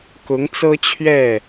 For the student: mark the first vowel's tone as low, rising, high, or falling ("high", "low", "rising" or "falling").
rising